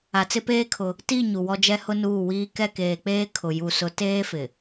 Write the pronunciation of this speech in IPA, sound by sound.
a˨ t͡s ɪ˦ p eː˦ kʰ ʊ˦ | t i˦˨ ɲ u˨ w ɔ˦ d͡ʒ ɛ˦ h ʊ˦ n uː˦˨ w iː˦ k ɛ˦˨ k eː˨ k͡p eː˦ kʰ ʊ˨ j u˨ s ʊ˨˦ t eː˦ f ɪ˨

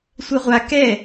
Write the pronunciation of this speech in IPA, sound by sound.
sʷ ɛ ʁʷ a k ɛ

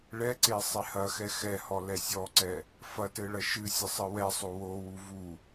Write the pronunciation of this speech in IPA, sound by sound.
ɭ ɛ ǀ e sˤ e h ɐ x ɛ x ɛ h ɔ l ɛ sʲ ɔ ǀ ɛ | f ɐ t ɘ ɭ ɐ ʃ ɨ sʲ ɘ sˤ ɨ w ɛ sˤ o w o w u v u

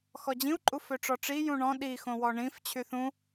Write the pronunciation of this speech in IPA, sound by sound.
x ɔ d͡ʑ ĩ u̯ ǃʼ u f ø ʈ͡ʂ ɔ ʈ͡ʂ i j ũ ɳ ɔ̃ ɗ i x õ w ɔ ɳ ĩ f t͡ɕʰ y θ ũ

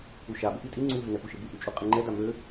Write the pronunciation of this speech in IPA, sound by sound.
u ʃ a b ɘ ʔ i tʼ i ŋ͡ǀ u ɦ ɘ n ɛ p u ʃ ɘ b u ʔ u t͡ʃʼ u qʼ i ŋ͡ǃ ɛ d a m ø

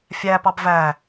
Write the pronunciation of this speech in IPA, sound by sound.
fʲ æ p ɑ b v æ

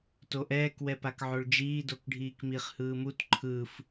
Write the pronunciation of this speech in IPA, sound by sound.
t o ʔ ɛː k w ɛ p a k ʕ o ɭ d͡ʒ iː d o k ɖʱ iː k m i χ h ɯː m u t ǃʰ ɯ f

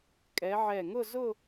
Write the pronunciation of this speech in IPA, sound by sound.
kʼ ɛ˨˦ ʕ ɛ˧˩ ŋ ʊ˥˧ z ʊ˥˧

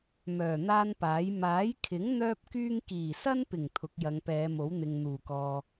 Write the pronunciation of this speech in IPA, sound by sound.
m œː˨˩ n̪ aː˥ n p aː˨˥ j m aː˨˥ j kʰ ɪ˨˥ ŋ n̪ œː˥ p̚ k yː˥ ŋ k iː˨˩ s ɐ˥ n p ɪ˨˩ ŋ t̪ʰ ʊ˨˥ k̚ j ɐ˨˧ ŋ p ɛː˨˧ m o˨˥ w n̪ ɪ˨ ŋ n̪ uː˨˩ k ɔː˨

